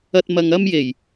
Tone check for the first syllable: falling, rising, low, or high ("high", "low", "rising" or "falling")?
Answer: low